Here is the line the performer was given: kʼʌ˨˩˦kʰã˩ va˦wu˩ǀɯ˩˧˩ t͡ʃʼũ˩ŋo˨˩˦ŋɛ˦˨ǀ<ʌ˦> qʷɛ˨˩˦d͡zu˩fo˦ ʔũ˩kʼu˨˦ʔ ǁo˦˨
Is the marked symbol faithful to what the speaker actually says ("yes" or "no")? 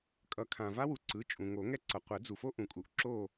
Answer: no